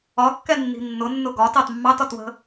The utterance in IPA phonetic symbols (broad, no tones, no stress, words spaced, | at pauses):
ɒkːɛnːi̤ nːʊnːʊ ɡɒ tɑtmːɑtɒt wə̤